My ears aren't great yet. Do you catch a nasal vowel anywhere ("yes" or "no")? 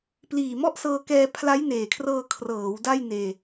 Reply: no